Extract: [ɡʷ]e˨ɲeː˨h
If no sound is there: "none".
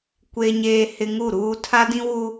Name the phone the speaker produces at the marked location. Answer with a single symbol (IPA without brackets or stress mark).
kʷ